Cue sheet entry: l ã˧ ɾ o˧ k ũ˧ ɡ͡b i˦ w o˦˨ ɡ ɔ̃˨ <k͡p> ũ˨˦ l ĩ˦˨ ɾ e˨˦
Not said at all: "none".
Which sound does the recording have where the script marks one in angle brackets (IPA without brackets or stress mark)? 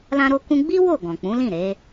k͡p